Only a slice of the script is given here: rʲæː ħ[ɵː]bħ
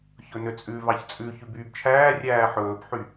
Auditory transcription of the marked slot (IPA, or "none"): ɵː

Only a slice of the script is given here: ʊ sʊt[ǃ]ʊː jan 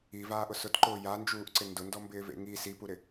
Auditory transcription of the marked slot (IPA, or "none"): ǃ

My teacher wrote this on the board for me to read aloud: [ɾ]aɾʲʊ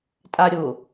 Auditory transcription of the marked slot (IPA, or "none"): tʼ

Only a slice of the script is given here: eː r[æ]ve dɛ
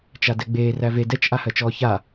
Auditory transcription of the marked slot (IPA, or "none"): æ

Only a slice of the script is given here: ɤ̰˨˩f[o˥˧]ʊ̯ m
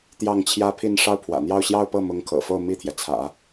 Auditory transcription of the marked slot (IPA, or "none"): o˥˧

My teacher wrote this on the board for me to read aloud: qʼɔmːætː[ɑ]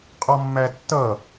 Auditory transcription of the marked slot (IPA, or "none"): ʌ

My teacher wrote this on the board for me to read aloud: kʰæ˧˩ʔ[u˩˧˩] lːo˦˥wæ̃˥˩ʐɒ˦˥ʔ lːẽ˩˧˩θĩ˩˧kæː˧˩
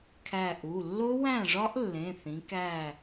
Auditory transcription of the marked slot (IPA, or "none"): u˩˧˩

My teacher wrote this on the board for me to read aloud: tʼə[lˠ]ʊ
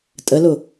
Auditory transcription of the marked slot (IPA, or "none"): l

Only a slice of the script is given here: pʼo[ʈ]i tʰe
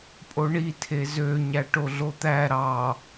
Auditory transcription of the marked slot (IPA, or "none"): ɳ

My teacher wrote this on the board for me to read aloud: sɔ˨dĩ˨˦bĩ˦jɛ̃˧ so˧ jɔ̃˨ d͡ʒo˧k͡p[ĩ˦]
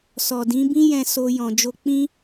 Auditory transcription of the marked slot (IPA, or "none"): ĩ˦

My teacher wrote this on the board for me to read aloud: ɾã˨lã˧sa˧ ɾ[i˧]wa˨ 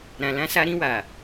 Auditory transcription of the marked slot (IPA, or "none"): ĩ˧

